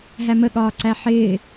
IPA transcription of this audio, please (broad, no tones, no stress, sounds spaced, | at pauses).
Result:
ɦ æ m ə ɠ ɒː ǀ æ ħ ɪː